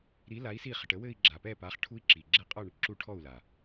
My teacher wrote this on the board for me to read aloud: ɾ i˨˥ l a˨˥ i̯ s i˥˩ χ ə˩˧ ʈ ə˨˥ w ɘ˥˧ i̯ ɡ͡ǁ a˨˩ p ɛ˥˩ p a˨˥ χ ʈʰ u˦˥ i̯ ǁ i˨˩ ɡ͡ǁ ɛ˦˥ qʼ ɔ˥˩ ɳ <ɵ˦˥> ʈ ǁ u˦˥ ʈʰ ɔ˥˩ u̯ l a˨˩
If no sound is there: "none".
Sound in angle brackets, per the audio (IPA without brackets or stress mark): ə˦˥